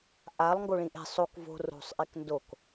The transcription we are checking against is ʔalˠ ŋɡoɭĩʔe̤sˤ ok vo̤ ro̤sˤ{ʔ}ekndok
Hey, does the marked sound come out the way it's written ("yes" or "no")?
yes